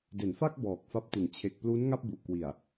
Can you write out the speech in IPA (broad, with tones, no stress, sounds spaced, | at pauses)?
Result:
d e˩˦ n f a˥˩ k̚ b ɔː˨˩ k̚ f a˦˥ p̚ t i˨˩ n t͡ɕʰ e˨˩ k̚ p l u˦˥ n ŋ a˥˩ p̚ b u˨˩ ʔ k w i˨˩ a̯